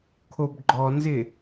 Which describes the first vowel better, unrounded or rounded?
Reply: rounded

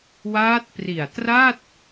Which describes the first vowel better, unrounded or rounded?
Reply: unrounded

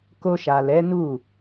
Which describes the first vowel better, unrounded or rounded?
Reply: rounded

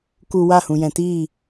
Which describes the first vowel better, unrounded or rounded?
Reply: rounded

